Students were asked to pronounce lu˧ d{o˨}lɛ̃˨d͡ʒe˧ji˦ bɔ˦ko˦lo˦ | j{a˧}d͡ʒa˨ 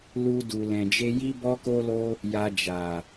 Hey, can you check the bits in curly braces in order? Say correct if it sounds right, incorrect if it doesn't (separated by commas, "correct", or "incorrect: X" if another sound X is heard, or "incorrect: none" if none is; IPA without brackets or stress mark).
incorrect: u˨, correct